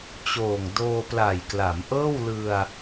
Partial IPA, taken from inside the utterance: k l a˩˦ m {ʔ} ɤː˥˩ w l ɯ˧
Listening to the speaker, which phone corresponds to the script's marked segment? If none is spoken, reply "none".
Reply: ʔ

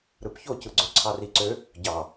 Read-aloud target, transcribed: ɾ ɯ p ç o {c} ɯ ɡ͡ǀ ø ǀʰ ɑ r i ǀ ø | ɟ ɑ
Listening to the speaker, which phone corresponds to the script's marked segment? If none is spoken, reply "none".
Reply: c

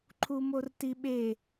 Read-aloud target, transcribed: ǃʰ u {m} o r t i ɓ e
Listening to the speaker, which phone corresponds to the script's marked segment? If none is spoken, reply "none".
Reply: m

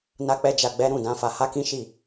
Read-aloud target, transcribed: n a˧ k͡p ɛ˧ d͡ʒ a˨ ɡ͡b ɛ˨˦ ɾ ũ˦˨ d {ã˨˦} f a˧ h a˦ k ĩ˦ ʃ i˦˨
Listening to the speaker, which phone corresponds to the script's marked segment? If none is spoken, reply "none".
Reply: ã˨˦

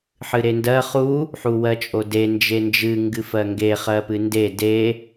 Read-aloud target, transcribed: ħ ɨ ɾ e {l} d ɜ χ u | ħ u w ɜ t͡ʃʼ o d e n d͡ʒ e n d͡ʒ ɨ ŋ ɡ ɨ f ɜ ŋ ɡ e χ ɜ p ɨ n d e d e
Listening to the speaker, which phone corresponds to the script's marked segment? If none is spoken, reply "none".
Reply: n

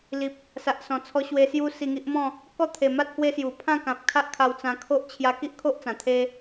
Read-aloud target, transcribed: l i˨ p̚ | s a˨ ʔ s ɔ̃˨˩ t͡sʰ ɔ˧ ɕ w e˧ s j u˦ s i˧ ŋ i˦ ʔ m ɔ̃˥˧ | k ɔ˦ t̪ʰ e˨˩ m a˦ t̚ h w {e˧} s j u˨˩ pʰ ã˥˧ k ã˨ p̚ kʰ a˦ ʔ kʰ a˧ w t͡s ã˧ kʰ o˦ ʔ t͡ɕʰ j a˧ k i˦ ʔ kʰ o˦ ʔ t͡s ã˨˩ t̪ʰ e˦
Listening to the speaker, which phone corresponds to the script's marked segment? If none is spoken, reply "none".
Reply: e˦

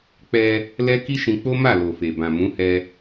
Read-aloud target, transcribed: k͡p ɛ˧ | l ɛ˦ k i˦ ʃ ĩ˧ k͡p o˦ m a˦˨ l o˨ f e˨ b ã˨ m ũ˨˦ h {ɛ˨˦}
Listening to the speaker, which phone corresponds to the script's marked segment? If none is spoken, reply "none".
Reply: ɛ˧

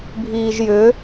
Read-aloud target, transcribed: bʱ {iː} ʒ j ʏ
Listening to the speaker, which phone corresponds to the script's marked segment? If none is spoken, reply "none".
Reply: iː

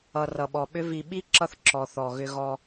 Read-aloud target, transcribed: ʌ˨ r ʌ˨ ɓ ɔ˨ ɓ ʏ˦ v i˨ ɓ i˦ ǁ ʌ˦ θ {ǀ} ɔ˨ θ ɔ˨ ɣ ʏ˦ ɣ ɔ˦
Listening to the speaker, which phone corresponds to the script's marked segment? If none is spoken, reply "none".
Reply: ǁ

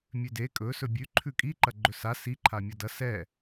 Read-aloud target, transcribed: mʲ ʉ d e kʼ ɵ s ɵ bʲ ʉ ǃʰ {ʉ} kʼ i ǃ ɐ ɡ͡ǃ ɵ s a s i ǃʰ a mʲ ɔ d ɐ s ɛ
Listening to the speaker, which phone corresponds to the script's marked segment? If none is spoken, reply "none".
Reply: ʉ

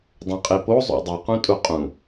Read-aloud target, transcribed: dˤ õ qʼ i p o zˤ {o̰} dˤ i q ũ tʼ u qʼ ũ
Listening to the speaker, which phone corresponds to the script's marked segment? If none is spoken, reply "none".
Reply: o̰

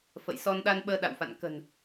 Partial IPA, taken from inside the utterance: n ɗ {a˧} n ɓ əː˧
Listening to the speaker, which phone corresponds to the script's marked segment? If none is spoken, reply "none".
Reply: a˧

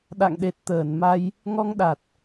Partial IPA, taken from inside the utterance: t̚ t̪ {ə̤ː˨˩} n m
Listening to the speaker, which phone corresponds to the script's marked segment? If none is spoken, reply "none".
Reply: əː˧˩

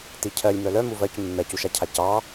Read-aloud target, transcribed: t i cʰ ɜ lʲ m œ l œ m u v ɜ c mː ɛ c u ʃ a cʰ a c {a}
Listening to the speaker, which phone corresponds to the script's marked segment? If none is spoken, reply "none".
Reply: ɑ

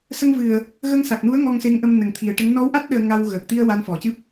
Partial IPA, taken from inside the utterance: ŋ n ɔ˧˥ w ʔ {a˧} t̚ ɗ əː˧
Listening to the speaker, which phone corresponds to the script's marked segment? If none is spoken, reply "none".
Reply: a˦˥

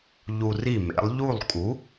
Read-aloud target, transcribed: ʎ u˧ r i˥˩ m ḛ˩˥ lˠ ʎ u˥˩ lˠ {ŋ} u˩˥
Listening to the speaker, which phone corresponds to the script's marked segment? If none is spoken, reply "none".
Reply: kʼ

